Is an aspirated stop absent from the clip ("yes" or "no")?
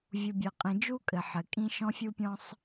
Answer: yes